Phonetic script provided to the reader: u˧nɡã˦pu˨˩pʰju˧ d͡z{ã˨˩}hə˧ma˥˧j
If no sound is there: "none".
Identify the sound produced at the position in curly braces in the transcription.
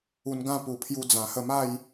ã˨˩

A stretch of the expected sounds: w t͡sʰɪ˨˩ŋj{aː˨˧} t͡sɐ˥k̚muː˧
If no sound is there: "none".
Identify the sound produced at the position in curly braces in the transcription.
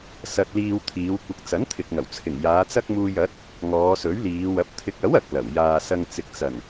aː˨˧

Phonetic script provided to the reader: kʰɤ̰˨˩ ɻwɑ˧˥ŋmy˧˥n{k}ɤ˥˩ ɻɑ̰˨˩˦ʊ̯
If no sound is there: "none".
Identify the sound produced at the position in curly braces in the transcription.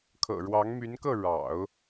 k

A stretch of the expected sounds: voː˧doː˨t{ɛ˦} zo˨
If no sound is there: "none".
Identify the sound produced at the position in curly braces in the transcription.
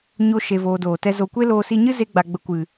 ɛ˦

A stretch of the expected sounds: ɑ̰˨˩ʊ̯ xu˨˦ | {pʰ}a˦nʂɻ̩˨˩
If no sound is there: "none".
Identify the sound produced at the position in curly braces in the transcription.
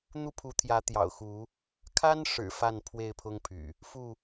kʰ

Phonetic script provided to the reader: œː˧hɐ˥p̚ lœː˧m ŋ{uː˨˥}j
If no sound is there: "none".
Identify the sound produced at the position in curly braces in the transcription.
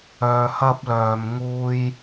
uː˥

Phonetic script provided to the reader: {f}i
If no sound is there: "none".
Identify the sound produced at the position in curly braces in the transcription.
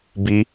b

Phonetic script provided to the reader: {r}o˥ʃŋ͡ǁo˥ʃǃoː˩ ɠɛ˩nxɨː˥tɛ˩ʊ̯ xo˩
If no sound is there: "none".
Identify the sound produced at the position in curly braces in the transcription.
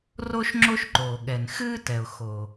r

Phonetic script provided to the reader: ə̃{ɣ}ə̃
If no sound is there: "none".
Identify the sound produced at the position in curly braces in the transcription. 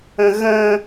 ɣ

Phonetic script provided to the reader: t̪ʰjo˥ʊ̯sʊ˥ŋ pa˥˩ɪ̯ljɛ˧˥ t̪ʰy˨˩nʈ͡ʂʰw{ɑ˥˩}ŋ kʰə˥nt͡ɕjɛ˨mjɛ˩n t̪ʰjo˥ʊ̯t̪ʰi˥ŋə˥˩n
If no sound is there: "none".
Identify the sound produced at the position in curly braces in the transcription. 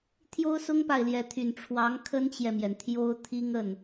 ɑ˧˥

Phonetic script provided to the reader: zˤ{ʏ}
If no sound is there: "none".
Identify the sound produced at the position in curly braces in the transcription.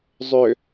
ʏ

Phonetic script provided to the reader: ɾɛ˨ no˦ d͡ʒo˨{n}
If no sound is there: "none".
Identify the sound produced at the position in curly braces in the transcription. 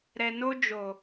none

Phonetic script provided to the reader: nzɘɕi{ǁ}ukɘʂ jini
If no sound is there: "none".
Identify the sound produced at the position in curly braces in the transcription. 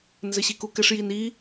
k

